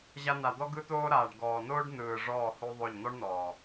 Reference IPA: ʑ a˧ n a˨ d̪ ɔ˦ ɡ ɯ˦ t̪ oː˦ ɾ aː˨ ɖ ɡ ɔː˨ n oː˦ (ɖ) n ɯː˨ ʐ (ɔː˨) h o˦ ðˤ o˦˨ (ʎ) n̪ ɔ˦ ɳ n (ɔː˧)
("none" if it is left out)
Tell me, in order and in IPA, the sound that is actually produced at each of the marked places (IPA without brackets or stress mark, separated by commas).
ɖ, ɔː˦˨, ʎ, ɔː˨